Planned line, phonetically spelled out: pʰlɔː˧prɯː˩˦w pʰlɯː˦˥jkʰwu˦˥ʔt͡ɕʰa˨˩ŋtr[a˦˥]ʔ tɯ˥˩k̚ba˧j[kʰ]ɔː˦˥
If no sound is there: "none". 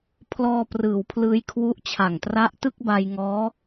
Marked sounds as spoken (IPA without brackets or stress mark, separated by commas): a˦˥, ŋ